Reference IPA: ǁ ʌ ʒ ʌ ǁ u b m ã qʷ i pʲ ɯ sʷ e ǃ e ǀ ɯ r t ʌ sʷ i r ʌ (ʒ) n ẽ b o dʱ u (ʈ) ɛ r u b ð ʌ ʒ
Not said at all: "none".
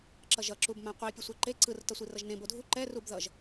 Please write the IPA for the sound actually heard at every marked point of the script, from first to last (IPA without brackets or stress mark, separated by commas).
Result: ʒ, ǃ